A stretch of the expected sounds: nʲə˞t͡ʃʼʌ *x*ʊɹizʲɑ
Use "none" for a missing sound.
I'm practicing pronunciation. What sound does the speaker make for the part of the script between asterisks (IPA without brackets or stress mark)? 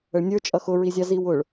x